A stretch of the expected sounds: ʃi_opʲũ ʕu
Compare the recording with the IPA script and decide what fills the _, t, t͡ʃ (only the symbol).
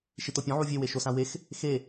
t